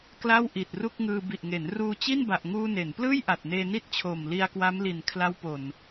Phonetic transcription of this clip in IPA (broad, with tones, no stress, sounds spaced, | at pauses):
k l a˥˩ w ʔ i˨˩ t̚ r u˥˩ k̚ ŋ ɯː˧ b i˨˩ ʔ ŋ e˩˦ n r uː˧ t͡ɕ i˥˩ n b a˨˩ ʔ ŋ uː˧ n e˩˦ n p l ɯː˥˩ j ʔ a˨˩ t̚ n eː˧ n i˥˩ t̚ t͡ɕʰ oː˨˩ m l i˧ a̯ k w a˦˥ m l i˨˩ n kʰ l a˦˥ w p o˨˩ n